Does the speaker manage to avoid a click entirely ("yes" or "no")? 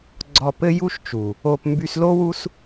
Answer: no